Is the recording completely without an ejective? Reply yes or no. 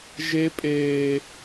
no